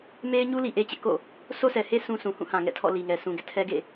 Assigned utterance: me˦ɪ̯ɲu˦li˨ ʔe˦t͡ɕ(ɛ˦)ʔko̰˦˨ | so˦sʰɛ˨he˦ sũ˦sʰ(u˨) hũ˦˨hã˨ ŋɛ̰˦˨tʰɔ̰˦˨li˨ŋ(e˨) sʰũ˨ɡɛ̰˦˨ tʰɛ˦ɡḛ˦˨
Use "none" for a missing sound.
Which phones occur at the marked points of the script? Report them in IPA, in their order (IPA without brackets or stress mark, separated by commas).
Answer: ɪ˦, ũ˨, ɛ˨